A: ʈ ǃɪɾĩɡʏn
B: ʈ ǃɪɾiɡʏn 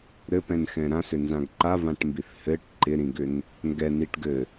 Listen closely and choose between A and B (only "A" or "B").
A